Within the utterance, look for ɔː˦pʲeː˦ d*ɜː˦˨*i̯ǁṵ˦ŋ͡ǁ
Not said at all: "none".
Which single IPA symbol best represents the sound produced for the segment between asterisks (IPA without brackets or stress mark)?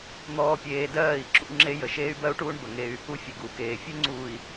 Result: ɜː˦˨